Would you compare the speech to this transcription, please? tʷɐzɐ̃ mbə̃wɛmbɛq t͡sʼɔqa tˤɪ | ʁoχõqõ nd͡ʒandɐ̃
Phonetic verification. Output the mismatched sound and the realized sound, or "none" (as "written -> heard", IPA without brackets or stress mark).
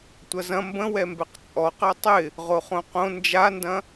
none